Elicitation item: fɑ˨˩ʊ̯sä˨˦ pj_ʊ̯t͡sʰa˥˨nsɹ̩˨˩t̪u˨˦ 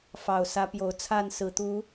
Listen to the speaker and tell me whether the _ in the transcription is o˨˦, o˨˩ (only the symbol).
o˨˩